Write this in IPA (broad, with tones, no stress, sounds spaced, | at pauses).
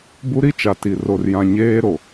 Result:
b u˦ ɾ i˦ t͡ʃ a˨ t i˨ r o˨ r j ã˨ ɲ eː˦ ɾ o˨